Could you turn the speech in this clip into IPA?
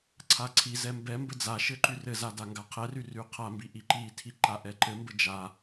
ǀʰ a ǀʰ i z ɛ m b ɛ m b ɘ d͡z a ʃ ɘ ǃ y r ɘ z a d a ŋ ɡ a qʰ ɛ r y r y qʰ a m b i ʔ i ǃ i tʰ i ǃ a ʔ ɛ ǃ ɘ m b ɘ d͡ʒ a

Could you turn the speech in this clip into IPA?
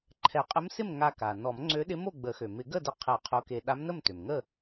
ǃʰ ɛ˨˩˦ qʼ ə˧˥ m s ɪ˥˨ m ŋ a˧ k a˩ n ɔ˨˩˦ m ŋ͡ǀ ø˧˥ ɗ ɪ˧˥ m o˥˨ ɡ͡b ə˨˩˦ x ø˩ m ɪ˨˩˦ ɡ ə˥˨ d ə˧ qʰ ɛ˨˩˦ qʰ o˧˥ k e˧ ɗ a˧˥ m n ə˥˨ m t ø˩ m ŋ ə˥˨

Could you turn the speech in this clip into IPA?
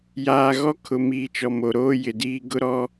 j aː˨ ɣ ɔ˦ kʰ ʊ˨ m iː˨ t͡ʃ ɔ˨ m o˨ ɾ oː˦ j ɪ˨ d iː˦ ɡ ʊ˦ ɾ ɔ˦

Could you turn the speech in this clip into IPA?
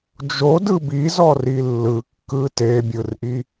d͡ʒ o d ɯ b i z ɔ r i lː ɯ kː ɯ t e bʲ ɯ r ʔ i

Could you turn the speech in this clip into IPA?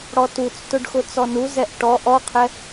ɽ ɔ t u t͡s t ʊ ɖ x ʊ t͡s ɔ n u z ɛ ʔ ʈ ɔ ʔ ɔ qʰ ɛ

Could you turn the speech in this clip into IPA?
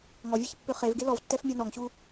ŋ ɔ vʲ e ç pː ø χ e v ɡ e l ɔ v tː ɛ f mʲ a n ɔ ŋ ɕ u

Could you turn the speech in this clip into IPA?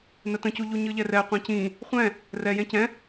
n ə t ə̃ c u ʎ u ɲ ɯ ʎ ɛ r ɛ qʷ ɛ̃ c ĩ | χʷ ɛ̃ | r ɛ j ɛ̃ c ɛ̃

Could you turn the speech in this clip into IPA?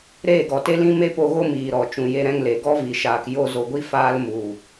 ɾ eː˦˨ ɡ ɔ˨ t e˦ l ĩ˦ m e˦ p o˧ ɣ o˦ m iː˨ ɾ ɔ˨ t͡ʃ ũ˨ j e˧ ɾ ɛ̃˧ ŋ l e˨ ɡ ɔ˦ v i˨ ʃ aː˨ k j o˧ z o˨ ɡʷ i˦ f aː˧ l m u˨

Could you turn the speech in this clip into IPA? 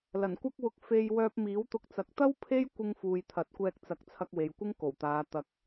l ɐ˨˩ n kʷ ɐ˥ k̚ w ʊ˧ k̚ f e˧ j w œː˧ p̚ m iː˨˥ w t̪ ʊ˧ k̚ t͡s ɐ˨˥ k̚ t̪ ɐ˥ w pʰ e˥ j kʷ ɪ˧ ŋ f uː˨ j t̪ʰ ɐ˨˥ t̚ kʷ ɛː˧ k̚ t͡s ɐ˨˥ k̚ t͡sʰ ɐ˧ k̚ w e˨ j kʷ ɪ˥ ŋ k o˨˩ w t̪ aː˨˧ t̪ ɐ˧ k̚

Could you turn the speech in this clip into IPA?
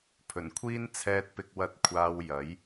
pʰ ɵ˨˩ n kʷʰ iː˥ n t͡sʰ ɛː˧ t̚ p ɪ˧ k̚ w ɐ˧ t̚ kʷʰ aː˧ w j ɐ˨˥ j

